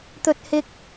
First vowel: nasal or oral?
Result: oral